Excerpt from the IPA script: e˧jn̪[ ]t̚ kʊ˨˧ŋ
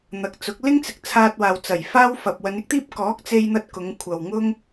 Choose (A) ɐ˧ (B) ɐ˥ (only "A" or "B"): A